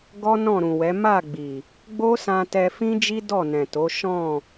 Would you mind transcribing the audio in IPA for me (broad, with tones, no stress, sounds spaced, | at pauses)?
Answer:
ɡ ɔ˦ n ɔ̃˦˨ ɾ ũ˨ w ɛ˨˦ m a˦˨ ɡ͡b i˨ | ɡ͡b o˦ s ã˧ t ɛ˧ f ĩ˦ d͡ʒ i˦ d ɔ˦˨ n ɛ̃˨ t o˨˦ ʃ ɔ̃˦˨